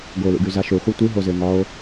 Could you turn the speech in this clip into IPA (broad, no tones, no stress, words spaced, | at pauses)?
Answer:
ɡolṵɡy zaʃuχʷɛ tʷiɦozɪː ŋɒo̯